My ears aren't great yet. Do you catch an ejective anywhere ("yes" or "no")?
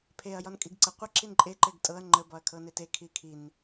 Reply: yes